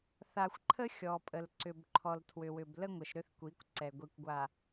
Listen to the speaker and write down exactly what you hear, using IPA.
θ a˨ xʷ ǃʰ ə˦ xʲ ɔ˨ pʼ ə˨ l ǀ ʏ˨ b ǃʰ ɔ˨ l tʰ w ʏ˨ w ʏ˨ b l ə˦ ŋʷ ə˨ ʃ ɾ ʏ˦ θ kʷ i˨˦ kʷ ǀ ɛ˨ ɡʷ i˨ kʷ ɡʷ a˨

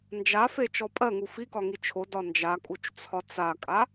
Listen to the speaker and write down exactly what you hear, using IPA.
n d͡ʒ a f e t͡ʃ ɔ pʼ ɜ ŋ u f i k ɒ ŋ i t͡ʃʰ o d ɒ n d͡ʒ a kʼ u t͡ʃ t͡sʰ ɒ t͡s a kʼ a

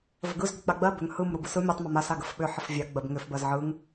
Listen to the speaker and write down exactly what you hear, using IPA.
v ə ɡ ɯ z ɡ ʏ k͡p a ɡ͡b ɜ b ʏ ŋ h ɯ m ɾ u b ɯ s ɯ mʲ u tˤ m ʏ m a s a ɡ ə f ɓ ʏ ħ ə f vʲ a ɡ͡b ɜ b ŋ ʏ f b ɜ z ʕ ɯ ŋ

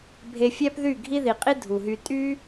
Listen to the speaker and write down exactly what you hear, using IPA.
bʱ e˧ fʲ æ˦ p ð y˦˨ ɡʱ i˦ ð i˨ qʼ i˦ dʱ u˨ ɦ y˧ tʼ y˦

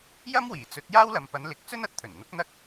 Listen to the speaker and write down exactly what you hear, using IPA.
j ɐ˥ m w iː˨˩ t͡s ɵ˨˥ t̚ j aː˥ w l ɐ˨ m p ɐ˨˧ n l ɪ˨˥ k̚ t͡s ɵ˥ n ɐ˨ t̚ t̪ʰ ɵ˨˩ n n̪ ʊ˨˥ k̚ n̪ ɐ˥ k̚

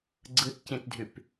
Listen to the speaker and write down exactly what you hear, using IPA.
ɡ͡ǀ ɯ t c ĩ t dʱ y p

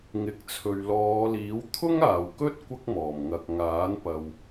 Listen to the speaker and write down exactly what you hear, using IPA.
ŋ ɪ˨ k̚ t͡sʰ ɵ˨ ɥ l ɔː˨˧ l iː˨˥ w t̪ʰ ʊ˥ ŋ aː˨ w k ɵ˥ t̚ kʷ ɐ˥ k̚ m ɔː˨˩ m ŋ ɐ˨ k̚ ŋ aː˨˥ n p ɐ˨ w

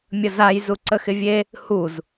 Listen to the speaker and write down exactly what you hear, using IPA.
mʲ ə z a j z u ǀ ə x ɪ vʲ e | h u z

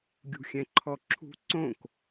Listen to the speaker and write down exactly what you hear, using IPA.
ɡʲ ṳ xʲ ɛ̃ ǃʰ ɔ ǁʰ ṳ ǀ õ k

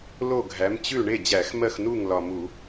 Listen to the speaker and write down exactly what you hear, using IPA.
l o˥˩ ɡʱ æ˩˥ m t͡ɕ ʉ˥˩ ɳ e˥˩ d͡ʑ æ˧˩˧ x m ɜ˥˩ x n u˥˩ ŋ l ɒ˨˩ m u˧˩˧

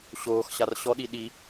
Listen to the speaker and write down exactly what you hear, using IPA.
ɕ oː x ɕ a r ɕ ɔ ɗ i ɗ i

